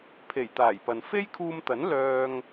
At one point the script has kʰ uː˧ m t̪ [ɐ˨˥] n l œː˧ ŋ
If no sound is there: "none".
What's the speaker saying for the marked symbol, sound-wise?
ɐ˨˥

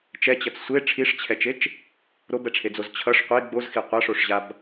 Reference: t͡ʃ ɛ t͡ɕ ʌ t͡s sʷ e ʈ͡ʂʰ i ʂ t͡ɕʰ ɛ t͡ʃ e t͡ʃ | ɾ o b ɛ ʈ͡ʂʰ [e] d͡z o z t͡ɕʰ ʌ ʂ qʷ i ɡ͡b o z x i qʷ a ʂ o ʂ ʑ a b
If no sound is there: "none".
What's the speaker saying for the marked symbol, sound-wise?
e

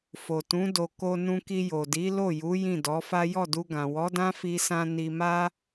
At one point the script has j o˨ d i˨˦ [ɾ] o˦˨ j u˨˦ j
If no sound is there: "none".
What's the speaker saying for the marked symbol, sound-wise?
l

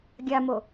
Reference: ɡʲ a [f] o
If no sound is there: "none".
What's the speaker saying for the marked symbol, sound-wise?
m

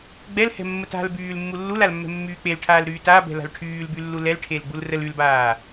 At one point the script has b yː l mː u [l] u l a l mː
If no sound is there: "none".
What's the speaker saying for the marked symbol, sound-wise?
lː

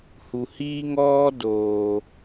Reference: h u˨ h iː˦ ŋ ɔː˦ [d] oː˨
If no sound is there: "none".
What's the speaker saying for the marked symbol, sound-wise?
d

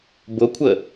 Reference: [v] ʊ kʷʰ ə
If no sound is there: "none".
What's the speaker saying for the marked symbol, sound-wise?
b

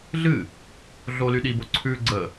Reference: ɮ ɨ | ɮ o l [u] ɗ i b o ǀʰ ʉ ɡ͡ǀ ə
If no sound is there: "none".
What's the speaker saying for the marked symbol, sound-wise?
y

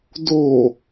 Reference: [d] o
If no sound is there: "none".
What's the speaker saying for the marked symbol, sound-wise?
d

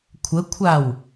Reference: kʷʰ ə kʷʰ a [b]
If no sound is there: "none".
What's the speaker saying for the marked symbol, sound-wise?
w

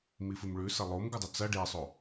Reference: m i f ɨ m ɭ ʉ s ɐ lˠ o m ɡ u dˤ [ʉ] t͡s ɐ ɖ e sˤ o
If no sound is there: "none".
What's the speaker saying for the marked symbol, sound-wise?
ɨ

